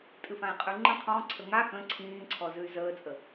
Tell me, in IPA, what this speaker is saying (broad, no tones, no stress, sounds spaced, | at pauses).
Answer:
tʼ ɨ f ã i̯ qʼ ʉ ŋ͡ǃ ə̃ qʰ ɔ̃ ǀʰ ə ŋ a x ə̃ ǀʰ ĩː ǀʰ ɔ z ʉ y̯ z əː t͡sʼ ə